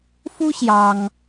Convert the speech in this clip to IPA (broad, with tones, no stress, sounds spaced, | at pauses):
f u˥ ɕ j ɑ˥ ŋ